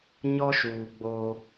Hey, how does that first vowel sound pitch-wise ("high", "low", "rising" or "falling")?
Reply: high